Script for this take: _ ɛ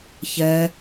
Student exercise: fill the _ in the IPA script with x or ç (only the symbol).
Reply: ç